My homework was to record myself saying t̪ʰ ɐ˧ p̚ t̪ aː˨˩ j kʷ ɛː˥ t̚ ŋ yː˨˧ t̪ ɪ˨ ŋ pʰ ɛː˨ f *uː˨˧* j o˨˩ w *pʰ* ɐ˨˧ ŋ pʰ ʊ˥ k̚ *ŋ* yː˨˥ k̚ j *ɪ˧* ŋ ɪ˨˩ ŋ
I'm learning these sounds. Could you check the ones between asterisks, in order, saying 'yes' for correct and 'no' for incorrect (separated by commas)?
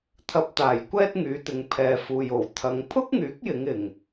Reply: no, no, yes, no